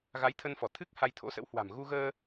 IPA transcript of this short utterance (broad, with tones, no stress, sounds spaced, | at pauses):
ɣ a˨˦ j t̪ʰ ə˧ n f ɔ˧˩ t̪ʰ ɨ˦˥ k̚ h a˧ j t̪ʰ o̰˧˥ s ə̰˧˥ w h w a̤˨˩ m ɣ u˧ ɣ əː˧